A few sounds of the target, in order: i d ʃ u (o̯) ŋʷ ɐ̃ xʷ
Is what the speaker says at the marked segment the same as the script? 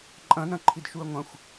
no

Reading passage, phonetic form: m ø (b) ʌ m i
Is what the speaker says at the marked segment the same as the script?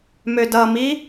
no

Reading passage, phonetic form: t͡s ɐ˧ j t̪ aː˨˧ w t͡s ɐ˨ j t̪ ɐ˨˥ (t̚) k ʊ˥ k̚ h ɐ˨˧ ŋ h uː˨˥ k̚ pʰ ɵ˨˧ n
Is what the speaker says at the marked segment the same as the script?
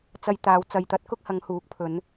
yes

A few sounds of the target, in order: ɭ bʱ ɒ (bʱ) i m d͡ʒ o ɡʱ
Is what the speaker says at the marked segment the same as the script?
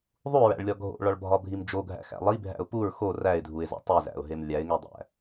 yes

